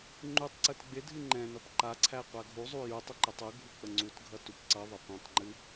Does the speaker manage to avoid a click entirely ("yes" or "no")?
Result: no